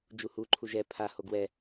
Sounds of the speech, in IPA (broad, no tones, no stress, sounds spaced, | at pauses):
d͡ʒ u h u ǃʰ u ʒ ɛ pʰ a h o ɡ w ɛ